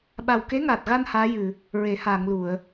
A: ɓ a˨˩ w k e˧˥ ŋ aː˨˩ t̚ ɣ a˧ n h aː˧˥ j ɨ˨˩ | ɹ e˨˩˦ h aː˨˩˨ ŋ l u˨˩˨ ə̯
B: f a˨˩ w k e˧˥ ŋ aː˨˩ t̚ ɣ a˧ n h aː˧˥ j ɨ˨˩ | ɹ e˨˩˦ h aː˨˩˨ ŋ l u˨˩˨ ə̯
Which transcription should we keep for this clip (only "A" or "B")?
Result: A